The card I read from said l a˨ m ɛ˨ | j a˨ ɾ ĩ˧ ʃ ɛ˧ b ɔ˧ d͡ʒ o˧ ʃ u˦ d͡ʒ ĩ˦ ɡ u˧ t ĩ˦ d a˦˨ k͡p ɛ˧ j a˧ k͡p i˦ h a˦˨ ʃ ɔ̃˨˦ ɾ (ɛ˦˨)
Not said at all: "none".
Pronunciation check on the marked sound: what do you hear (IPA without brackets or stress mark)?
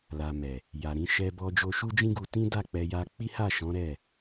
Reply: ɛ˦˨